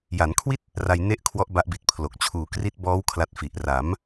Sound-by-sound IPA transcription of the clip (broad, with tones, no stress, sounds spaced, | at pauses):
j a˩˦ n kʰ w i˥˩ t̚ | r a˧ j n e˥˩ ʔ kʰ w ɔ˦˥ ʔ b a˦˥ ʔ b i˨˩ t̚ pʰ l o˨˩ k̚ t͡ɕʰ uː˩˦ k r i˦˥ t̚ b ɔː˦˥ w kʰ l a˦˥ t̚ f i˨˩ ʔ r a˩˦ m